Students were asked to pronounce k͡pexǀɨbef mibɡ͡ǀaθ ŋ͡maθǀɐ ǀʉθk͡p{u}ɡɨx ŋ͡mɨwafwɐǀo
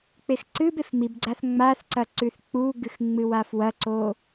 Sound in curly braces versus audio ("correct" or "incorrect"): correct